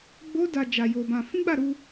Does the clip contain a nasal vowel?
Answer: yes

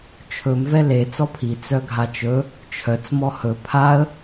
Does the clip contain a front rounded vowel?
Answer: yes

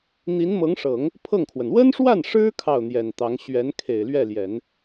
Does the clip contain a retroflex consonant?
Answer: yes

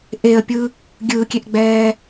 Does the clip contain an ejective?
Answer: no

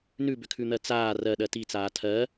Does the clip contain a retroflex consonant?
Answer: no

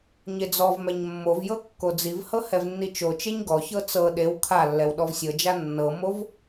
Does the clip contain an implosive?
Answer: yes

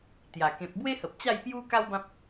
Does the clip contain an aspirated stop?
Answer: no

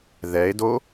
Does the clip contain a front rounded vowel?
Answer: no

